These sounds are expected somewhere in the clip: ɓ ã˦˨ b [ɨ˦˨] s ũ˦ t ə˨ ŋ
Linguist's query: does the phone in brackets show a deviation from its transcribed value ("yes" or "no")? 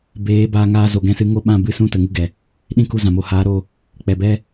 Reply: yes